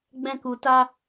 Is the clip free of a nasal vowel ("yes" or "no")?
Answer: no